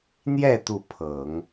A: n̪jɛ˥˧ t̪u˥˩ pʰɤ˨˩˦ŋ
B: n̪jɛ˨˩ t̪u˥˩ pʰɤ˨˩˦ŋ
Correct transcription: A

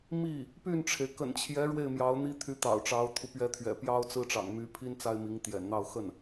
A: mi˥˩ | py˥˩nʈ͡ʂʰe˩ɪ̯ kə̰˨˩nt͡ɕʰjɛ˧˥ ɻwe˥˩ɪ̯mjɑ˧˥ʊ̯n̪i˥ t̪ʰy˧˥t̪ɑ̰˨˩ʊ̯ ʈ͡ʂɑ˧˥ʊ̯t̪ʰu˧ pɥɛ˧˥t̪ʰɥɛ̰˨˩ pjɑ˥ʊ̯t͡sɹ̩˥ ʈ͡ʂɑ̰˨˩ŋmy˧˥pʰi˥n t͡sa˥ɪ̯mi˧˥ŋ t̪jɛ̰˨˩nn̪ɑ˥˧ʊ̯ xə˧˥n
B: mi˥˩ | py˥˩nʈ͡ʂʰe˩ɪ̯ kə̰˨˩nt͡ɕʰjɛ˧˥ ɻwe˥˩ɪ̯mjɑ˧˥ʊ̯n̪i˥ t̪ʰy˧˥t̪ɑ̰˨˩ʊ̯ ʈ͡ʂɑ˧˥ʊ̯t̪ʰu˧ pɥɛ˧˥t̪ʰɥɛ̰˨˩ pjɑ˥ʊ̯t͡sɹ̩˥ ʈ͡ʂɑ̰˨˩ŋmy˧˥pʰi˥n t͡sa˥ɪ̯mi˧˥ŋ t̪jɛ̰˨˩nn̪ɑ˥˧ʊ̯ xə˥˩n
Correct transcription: B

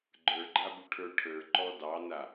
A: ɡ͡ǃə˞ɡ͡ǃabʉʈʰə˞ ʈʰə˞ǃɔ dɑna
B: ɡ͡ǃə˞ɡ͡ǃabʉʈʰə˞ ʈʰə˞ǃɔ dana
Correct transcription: A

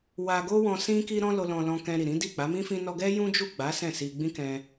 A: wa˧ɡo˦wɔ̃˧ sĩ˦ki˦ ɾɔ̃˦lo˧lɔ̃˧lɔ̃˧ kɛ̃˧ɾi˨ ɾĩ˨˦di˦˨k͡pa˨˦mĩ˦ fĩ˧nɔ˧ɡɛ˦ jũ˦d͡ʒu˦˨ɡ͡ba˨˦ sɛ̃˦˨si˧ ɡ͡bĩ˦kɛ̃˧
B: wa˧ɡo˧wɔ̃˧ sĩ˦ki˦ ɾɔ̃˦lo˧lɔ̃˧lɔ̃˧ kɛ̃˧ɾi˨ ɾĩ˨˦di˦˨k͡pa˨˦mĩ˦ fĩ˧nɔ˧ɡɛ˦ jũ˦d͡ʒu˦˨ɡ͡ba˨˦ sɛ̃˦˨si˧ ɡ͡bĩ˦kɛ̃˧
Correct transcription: A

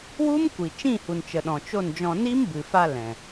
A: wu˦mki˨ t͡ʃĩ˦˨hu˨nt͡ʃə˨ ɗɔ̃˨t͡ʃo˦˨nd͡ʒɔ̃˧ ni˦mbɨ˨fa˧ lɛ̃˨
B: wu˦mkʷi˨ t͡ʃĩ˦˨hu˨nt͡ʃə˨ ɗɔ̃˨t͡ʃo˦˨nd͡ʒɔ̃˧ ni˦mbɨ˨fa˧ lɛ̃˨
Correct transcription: B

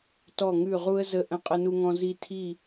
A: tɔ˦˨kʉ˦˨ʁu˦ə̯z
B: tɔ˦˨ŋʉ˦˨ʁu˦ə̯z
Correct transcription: B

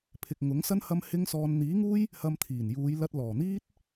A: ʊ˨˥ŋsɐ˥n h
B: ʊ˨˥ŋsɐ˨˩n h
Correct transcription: A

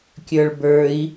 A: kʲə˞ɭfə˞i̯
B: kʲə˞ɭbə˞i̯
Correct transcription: B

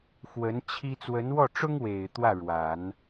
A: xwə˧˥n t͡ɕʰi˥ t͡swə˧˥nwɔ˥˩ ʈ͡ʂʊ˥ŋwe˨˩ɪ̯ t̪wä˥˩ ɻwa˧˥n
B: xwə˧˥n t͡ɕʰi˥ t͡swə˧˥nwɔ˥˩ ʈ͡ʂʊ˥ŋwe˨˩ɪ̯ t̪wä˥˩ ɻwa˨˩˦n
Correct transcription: B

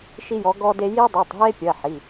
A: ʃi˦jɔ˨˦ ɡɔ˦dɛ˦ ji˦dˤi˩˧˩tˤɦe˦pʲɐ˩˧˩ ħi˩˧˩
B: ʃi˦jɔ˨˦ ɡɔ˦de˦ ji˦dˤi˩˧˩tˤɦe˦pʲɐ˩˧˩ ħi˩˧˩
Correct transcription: B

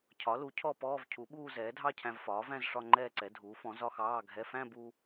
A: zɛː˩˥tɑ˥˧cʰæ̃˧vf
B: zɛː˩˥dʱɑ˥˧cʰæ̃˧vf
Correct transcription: B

